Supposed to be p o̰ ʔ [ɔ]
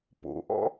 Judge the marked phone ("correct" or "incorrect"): incorrect